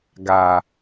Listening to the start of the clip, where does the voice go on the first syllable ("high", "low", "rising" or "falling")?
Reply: low